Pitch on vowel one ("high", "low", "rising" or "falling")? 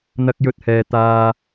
high